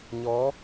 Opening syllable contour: rising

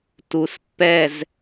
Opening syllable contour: low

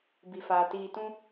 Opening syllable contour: low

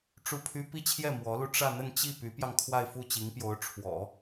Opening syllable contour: falling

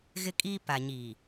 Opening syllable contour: high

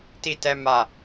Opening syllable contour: high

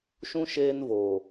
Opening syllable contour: high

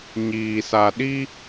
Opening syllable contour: low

